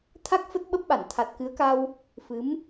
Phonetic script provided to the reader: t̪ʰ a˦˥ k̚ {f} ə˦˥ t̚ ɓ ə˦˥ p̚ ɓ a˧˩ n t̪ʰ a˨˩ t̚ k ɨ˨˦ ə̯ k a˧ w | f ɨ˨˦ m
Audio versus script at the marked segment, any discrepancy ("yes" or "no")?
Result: no